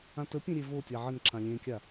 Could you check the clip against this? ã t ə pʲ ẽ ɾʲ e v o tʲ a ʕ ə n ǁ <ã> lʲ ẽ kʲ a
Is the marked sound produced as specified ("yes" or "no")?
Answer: yes